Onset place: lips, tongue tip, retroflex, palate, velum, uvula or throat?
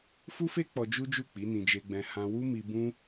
lips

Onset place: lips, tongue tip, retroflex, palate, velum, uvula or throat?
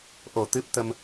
throat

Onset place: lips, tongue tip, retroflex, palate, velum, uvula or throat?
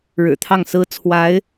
retroflex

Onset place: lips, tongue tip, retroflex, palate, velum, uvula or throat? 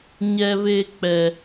palate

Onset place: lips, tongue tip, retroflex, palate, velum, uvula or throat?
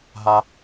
throat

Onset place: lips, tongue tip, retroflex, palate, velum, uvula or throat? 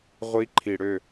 uvula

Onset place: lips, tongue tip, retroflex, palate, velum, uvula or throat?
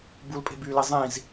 lips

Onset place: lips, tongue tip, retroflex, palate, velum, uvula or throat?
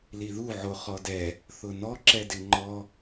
tongue tip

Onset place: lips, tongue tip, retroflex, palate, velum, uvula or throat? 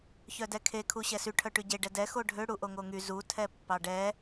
palate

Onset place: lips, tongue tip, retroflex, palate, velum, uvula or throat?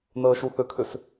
tongue tip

